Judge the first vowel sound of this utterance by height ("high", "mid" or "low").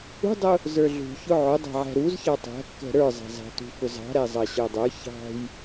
high